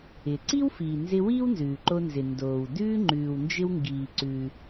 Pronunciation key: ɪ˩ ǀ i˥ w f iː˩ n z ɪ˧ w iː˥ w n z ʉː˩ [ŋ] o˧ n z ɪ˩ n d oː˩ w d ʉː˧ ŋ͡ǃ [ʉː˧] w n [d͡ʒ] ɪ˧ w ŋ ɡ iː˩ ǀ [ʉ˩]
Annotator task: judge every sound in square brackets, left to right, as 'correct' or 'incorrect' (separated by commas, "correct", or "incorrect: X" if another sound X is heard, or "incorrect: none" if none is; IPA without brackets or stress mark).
incorrect: ǃ, incorrect: ʉː˩, correct, correct